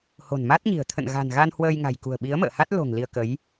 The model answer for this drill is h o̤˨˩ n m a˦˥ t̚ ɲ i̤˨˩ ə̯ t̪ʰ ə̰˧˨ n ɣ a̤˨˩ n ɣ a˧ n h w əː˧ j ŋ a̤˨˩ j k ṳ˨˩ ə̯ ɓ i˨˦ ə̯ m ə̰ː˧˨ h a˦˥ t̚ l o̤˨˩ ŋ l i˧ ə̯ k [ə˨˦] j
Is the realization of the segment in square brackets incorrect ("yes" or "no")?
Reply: no